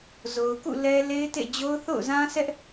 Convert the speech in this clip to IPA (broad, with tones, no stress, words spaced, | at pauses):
zo˨ʊ̯kṵ˦˨ lɛ˦ le˦ɪ̯tḛ˦˨d͡ʑo˦ʊ̯ θo̰˦˨ʊ̯zã˦sɛ˦ʔ